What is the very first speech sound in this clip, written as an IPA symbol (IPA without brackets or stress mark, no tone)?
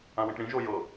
ã